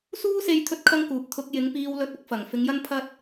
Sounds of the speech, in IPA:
s uː˥ s e˧ j t̪ʰ ɵ˥ t̚ kʰ ɐ˥ ŋ k uː˨ p̚ t̪ʰ ʊ˧ k̚ j ɪ˨˧ ŋ p iː˧ w l ɵ˧ t̚ ʊ˨˥ k̚ f ɐ˨ ŋ f ɪ˧ ŋ j ɐ˥ n pʰ ɐ˥ t̚

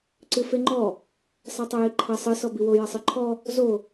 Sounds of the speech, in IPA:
ǀ ɨ f e ŋ͡ǃ ɔ | sˤ a tˤ ɐ j i ǃʰ ɐ sˤ ɨ s ɔ b i w o j ɐ sˤ ɨ ǃʰ ɔ | z o

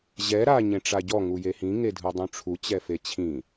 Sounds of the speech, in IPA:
ʑ ɛ ɾ a ɲ ẽ ʈ͡ʂ a ɟ ɔ ŋ u j e h ĩ ŋ e dʱ ɯ dˤ ũ ʈ͡ʂʰ u t͡ɕ ɛ f e t͡ɕʰ ĩ

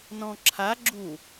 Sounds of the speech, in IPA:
n ɔ̃ ǁʰ a ɡ͡ǁ u

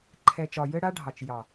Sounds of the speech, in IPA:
ǃʰ ɛ˨ t͡ʃ ɒ˨ j ɘ˦ ɽ a˦ ɖʱ ɑ˨ t͡ʃ j ɑ˨

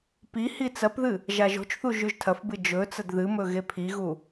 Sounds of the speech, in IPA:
p i h i t͡s ɐ p ð ɨ | ʒ a ʒ o̤ t͡ʃ θ u ʒ ʉ ʒ tʰ ɐ f b ɨ d͡ʒ ɵ t͡s ɐ d ð ɨ m ɵ ɣ e pʰ i ɣ u

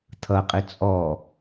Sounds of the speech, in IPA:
t̪ʰ ʌ qʼ i t͡sʼ ɔ

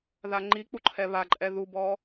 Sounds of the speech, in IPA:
ð a ŋ͡ǃ i k͡p u ǃʰ ɛ β a ǃʼ ɛ ð u b ɔ

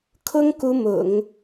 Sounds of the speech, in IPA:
kʰ ʊ˥ ŋ k u˥ m ʊ̰˨˩˦ ŋ

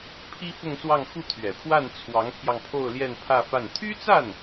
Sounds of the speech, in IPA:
pʰ i˥ f ʊ˥˧ ŋ s w ɑ˥˧ ŋ x u˥˩ t̪ʰ ɥ ɛ˨˩ pʰ w a˥˩ n t͡sʰ w ɑ˧˥ ŋ pʰ j ɑ˧ ŋ pʰ o˥˧ ʊ̯ l j ɛ˥˧ n pʰ ä˥˧ f a˥˩ n t̪ʰ y˥ t͡s a˥˩ n

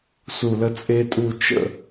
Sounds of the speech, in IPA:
s u˧˩ l ə˥ t͡sʼ e˥ tʼ u˥˧ t͡ʃ ə̰˥˧

